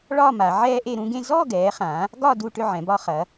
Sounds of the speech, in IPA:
ɭɒ˥˧ ma˩˧ʕɛː˥ʔe˥˧ɾũ˥ ɡẽ˥˧ zɔ˥˧ɡɛː˩˧χã˩˧ | ɡɒ˥˧ du˥˧ʈʏ˥˧ʕɛ̃˩˧ bɒ˧χɐ˩˧

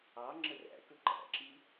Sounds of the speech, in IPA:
ɑ ŋ͡ǁəræ̰kɵ ǃæ̰ǁi

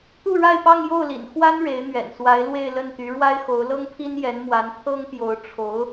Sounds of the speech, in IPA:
t̪u˥˧ɻa˥˧ɪ̯pɑ˥˧ŋ jo˥˩ʊ̯lḭ˨˩n xwa˥n ɻe˧˥ɪ̯n̪ɥɛ̰˨˩nswa˧˥ɪ̯ lwe˥˧ɪ̯lə˥˩nt̪y˧˥ ɻwa˥ɪ̯xo˧˥ʊ̯lɤ˥ŋpʰi˥n jɛ˧˥nmwa˧˥n t̪ʰɤ˥ŋpjo˧˥ʊ̯ ʈ͡ʂʰo˧˥ʊ̯

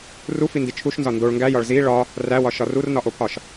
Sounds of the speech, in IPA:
rufindi t͡ʃʰuʃnzɒ ndoɭ ŋɡæjɒɭ zi ɭɒ | ræwɒʃɒr urnɒʔopʰɒʃ

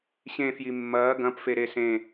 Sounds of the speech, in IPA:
ɕẽfji mːɐː ɡɐ̃pfeɾe sẽ

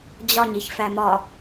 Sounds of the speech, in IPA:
d͡ʑɒɲiç fæmɒ

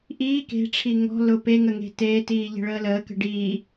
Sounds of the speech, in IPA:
ʔiː ke̤ʈ͡ʂʰi ŋɔ̤ lʊ peŋə ŋe̤teːtiː ʎe̤ɭəːləːkə̤ ɖiː

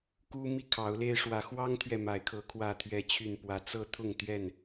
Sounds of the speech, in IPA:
ku˦mi˦kʰɑ˨˦ʊ̯le˦ɪ̯ ʂwä˨˦xwɑ˦ŋt̪ʰɥɛ˨ ma˨˦ɪ̯kʰɤ˨˦ kʰwä˥˨t̪ʰɥɛ˦t͡ɕʰy˥˨npwä˦ t͡sɤ˦t̪ʰʊ˥˨ŋt̪ɥɛ˥˨n

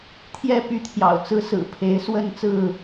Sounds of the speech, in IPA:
t̪ʰjɛ˥˨ py˥˨t̪ʰjɑ̰˨˩ʊ̯t͡sɹ̩˦ sɹ̩˨˩pʰe˨˦ɪ̯ swə˥˨nt͡sɹ̩˥˨

